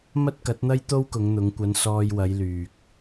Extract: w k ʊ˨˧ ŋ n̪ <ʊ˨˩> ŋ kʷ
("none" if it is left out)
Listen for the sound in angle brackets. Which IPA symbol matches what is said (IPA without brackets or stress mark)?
ʊ˨˧